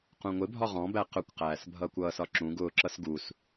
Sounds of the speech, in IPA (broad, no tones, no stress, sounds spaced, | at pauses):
q ũ ŋʷ ɪ bʱ ɒ ʁ ɔ̃ b æ q ʊ kʷ q æː s bʱ ʌː kʷ ʌː s ɒ ǁ ũ ɡ ʊː ǁ ʌ s ɡ u s